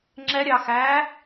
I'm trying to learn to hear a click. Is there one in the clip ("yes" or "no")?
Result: yes